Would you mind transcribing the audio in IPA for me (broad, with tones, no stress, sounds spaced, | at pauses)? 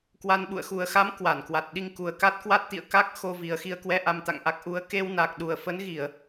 k w a˧ n ɓ ṵ˧˨ ə̯ x u˨˩ ə̯ x a˨˦ m k w a˧˩ n k w a˨˩ t̚ ɗ i˧ ŋ k u˨˩ ə̯ k a˦˥ t̚ k w a˦˥ t̚ t̪ ḭ˧˨ ə̯ k a˦˥ k̚ x o˧ v i˨˩ ə̯ x i˧ ə̯ k w ɛ˧ ʔ a˧ m t̪ a̰˧˨ ŋ ʔ a˦˥ k̚ ʔ u˨˦ ə̯ k e˧ w n a˨˩ k̚ ɗ u˨˩ ə̯ f ə˨˦ n ɣ i˧˩˨ ə̯